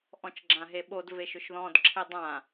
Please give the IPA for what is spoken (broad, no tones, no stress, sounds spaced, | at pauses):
ʔ ɔ̃ t͡ʃ ɡ͡ǁ ã ɦ e ɓ o d v e ʃ ʏ ʃ ð ɔ̃ d ǁʰ e dˤ ã